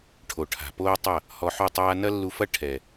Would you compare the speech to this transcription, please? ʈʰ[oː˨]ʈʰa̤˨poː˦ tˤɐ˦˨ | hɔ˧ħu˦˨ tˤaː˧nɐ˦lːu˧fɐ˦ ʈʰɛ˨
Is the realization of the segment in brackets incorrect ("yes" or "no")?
yes